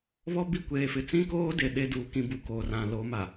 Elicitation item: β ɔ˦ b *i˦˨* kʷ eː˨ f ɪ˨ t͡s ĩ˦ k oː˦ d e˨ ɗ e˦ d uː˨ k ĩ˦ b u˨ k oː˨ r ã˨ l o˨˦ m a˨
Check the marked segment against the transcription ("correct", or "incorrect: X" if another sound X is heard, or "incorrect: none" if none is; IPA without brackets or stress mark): correct